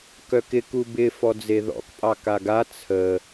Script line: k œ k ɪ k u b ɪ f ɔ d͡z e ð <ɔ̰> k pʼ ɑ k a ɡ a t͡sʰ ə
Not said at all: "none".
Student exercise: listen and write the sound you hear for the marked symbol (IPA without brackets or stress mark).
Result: ɔ̰